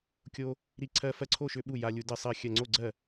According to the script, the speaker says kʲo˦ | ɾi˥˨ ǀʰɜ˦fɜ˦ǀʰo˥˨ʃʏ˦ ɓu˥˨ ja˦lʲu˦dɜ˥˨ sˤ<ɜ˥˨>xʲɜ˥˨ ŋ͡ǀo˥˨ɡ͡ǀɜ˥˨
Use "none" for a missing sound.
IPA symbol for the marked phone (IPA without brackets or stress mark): ɜ˥˨